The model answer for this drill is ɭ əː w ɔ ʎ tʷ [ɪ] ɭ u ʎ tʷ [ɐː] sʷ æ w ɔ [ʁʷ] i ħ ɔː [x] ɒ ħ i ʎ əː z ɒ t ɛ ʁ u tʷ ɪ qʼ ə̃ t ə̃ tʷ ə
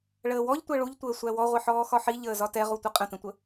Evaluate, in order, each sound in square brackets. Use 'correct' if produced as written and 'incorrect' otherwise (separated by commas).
incorrect, incorrect, correct, correct